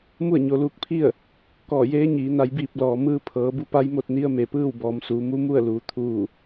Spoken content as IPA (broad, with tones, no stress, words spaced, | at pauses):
mu˥˨ə̯ɲo˩˧luː˧˥k̚pʰi˥˨ə̯ | kɔː˧˩jeː˧˥ɲiː˩˧ na˩˧jbiː˧˩p̚ lɔː˩mɯː˧ pʰɤː˩˧bu˧˥pa˧˥j mo˧t̚ni˧˥ə̯ me˩pɯː˥˨wbɔː˩˧msuː˩˧ mu˧˥mu˥˨ə̯luː˩˧ t̪ʰuː˧˩